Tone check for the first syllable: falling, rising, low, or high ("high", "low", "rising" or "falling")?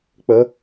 rising